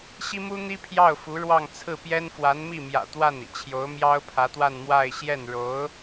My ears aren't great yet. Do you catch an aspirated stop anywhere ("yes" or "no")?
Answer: yes